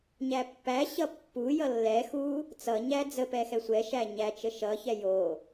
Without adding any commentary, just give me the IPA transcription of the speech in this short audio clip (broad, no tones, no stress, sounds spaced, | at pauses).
ɲ æ pː æ ɕ ʌ pː u j ʌ lː ɛ x u | t͡s ʌ ɲ æ d͡z ə p ɛ x ɛ sʷ ɛ ʃ æ ɲ æ t͡ʃ ə ʃ ʌ ç ɛ j o